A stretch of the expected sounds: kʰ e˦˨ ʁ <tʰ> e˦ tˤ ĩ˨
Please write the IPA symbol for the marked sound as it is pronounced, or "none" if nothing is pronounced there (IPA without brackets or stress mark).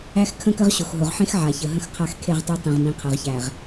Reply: tˤ